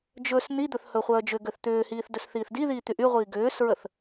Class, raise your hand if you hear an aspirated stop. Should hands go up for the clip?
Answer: no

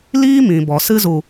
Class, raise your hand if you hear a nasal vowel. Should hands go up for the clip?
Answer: yes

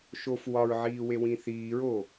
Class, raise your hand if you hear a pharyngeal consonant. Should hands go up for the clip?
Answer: yes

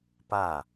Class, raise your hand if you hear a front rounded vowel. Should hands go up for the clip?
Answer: no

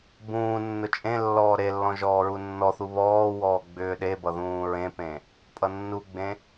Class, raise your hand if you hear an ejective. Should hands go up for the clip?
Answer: yes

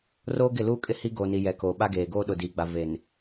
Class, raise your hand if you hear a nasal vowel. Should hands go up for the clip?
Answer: no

